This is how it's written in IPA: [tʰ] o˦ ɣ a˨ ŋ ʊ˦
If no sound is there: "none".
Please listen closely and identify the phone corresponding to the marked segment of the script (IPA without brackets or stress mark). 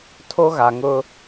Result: tʰ